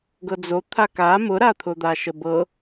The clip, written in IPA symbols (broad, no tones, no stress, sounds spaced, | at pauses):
ɡ ɤ d͡z o t̪ʰ a k a m ʊ ɾ a t̪ʰ ʊ d̪ a ʃ ə b ɤ